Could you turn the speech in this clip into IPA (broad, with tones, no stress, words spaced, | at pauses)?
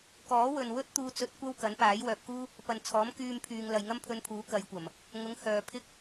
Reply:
kɔː˨˥wɵ˨n wɵ˥t̚t̪uː˧t͡sɵ˧t̚ kʷɐ˥wkɐ˨˥npaː˨˥j wœː˨p̚kuː˥ | pɐ˨nt͡sʰɔː˨˥m kyː˧mpʰyː˨ŋ lɐ˨jŋɐ˥mpʰɵ˧npʰuː˨˥ kɐ˨˧jkʷɐ˨˩m | ŋʊ˨˥ŋ hœː˨pʰɪ˥k̚